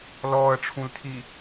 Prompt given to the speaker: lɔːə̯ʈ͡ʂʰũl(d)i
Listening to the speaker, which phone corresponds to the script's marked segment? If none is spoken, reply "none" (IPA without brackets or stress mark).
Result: tʰ